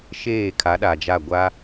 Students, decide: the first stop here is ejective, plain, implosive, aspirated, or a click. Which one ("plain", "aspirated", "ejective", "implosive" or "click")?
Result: aspirated